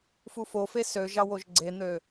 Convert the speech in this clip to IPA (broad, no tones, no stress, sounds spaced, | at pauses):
f u f o f e s ø ʒ ɑ w o ʒ ɡ͡ǀ e n̪ ø